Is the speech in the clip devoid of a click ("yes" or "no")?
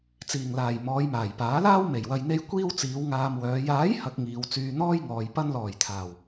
yes